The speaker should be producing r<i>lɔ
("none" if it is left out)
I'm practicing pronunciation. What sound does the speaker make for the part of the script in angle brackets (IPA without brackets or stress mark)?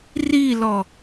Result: i